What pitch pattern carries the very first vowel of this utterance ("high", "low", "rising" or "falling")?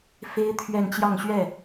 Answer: high